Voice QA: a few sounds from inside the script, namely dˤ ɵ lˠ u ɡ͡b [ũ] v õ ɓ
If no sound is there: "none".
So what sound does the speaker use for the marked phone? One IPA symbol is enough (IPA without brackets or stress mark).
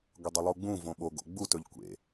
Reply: ũ